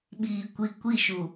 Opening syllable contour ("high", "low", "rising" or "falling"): low